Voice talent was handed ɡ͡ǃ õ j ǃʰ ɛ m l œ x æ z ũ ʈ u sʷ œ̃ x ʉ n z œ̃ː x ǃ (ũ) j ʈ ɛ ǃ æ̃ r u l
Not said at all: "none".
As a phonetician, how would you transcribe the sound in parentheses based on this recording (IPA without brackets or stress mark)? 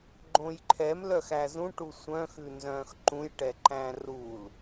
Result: ũ